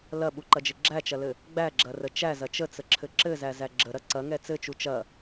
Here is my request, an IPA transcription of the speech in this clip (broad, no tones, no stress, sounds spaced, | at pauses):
l ɐ ɓ u ǃ ɐ d͡ʒ ɘ ɡ͡ǁ æ t͡ʃ ɐ l ɘ | ɡ͡b æ ɡ͡ǁ ɐ r ə t͡ʃ æ z ɐ t͡ʃ ə t͡s ə ǁʰ ɘ ǁ ɘ z æ z æ ɡ͡ǁ ə ɾ ɐ ǀ ɐ ŋ ɛ t͡s ɘ t͡ʃ u t͡ʃ ɐ